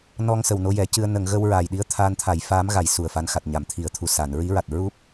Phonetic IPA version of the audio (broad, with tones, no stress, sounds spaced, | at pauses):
n ɔ˧ ŋ s ə˨˩ w n o˧ j ɛ˨˩˦ c ɨ˧ ə̯ n ə˨˩˨ ŋ ɣ ə˧ w ɹ aː˨˩ j ɗ i˧˥ ə̯ t̪ʰ aː˧ n t̪ʰ a˨˩˦ j f aː˧˥ m ɣ a˨˩˨ j s u˨˩ ə̯ f a˧˥ n x a˨˩ t̚ ɲ a˨˩˨ m t̪ʰ i˨˩˨ ə̯ t̪ʰ u˨˩ s a˨˩˨ n ɹ i˧˥ ɹ a˨˩ t̚ ɹ u˦˥ p̚